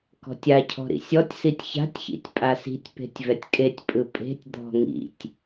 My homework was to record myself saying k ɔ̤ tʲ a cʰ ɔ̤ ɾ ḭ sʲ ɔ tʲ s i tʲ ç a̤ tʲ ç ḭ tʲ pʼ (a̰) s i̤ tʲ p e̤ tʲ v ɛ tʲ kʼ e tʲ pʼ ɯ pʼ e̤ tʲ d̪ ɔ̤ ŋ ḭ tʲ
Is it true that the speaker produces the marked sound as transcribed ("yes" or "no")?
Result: no